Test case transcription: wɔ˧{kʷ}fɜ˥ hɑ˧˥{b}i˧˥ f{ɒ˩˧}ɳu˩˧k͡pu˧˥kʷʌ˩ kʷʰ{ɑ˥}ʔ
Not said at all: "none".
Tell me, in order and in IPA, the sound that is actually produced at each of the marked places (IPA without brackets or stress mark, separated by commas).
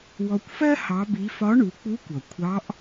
kʷ, b, ɒ˧˥, ɑ˧˥